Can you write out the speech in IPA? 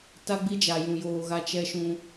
t a˦ ɡ͡b i˦ d͡ʒ a˨ j ũ˨ j oː˨ ɣ a˦ t͡ʃ ɛ˦ ʃ ũ˦

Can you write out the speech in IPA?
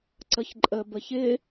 ǀ ə ç ǃʼ ə b ə ç ɪ

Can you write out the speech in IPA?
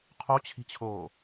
qʰ o t͡ɕʰ i̤ t͡ɕʰ oː

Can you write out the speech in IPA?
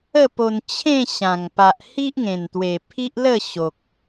ə˥˧ p o˧ n t͡ɕʰ ẽ˥˧ ɕ ã˨˩ ŋ p a˨ ʔ h i˦ ʔ ŋ ẽ˨˩ n t̪ w e˨˩ pʰ i˦ ʔ l ə˥˧ ɕ o˨ k̚

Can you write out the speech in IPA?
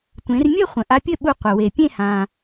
tʷ ẽ˩˧ r mʲ ɘ˥˨ χʷ ə̃˩ ʔ a˧ pʲ ɘ˥˨ ɓ u˧ qʷ ɘ˩ w e˩ pʲ ẽ˥˨ h ã˩

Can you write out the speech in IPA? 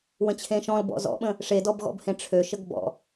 w ə̃ t͡ɕʰ ẽ ʃ ɔ̃ l b ɔ̰ z ɔ̰ ɓ ə̃ | ʂ e d ɔ b ɣ ɔ̰ b h ẽ ʈ͡ʂʰ ø ʃ ə ɡ b ɔ̰

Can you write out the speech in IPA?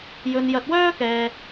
j ɵ˧ n j ɐ˧ t̚ w œː˥ k ɛː˧

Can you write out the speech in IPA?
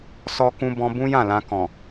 s ɔ˦ k ũ˦ b ɔ̃˧ b ũ˦ j ã˦˨ l ã˧ k ɔ̃˨

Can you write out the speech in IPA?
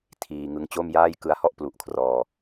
tʰ iː˧ ŋ ɯ˧ ŋ t͡ɕ o˥˩ m j aː˥˩ j k ɯ˦˥ a̯ h ɔ˥˩ ʔ p l u˨˩ ʔ kʰ r ɔː˧

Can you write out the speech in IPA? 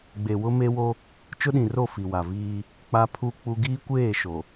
ɡ͡b e˨ w ʊ˦ m e˦ w o˦ | t͡ʃ ʊ˦ ɗ ĩ˨ r o˦˨ f i˨ w a˨ v iː˦ | k͡p a˦ pʰ u˦ k͡p u˦ ɡ iː˦ kʷ eː˦˨ ʃ o˨

